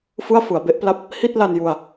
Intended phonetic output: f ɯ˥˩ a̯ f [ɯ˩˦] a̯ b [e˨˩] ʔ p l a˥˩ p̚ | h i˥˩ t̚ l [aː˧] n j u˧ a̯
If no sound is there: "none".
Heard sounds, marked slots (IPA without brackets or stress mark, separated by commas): ɯ˩˦, e˦˥, a˧